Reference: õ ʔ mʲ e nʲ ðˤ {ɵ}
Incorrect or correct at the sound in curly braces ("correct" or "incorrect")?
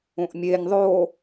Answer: incorrect